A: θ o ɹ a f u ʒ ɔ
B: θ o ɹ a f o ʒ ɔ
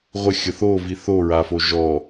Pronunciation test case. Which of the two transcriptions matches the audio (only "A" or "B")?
B